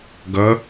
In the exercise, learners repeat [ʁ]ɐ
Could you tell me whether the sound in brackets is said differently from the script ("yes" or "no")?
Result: yes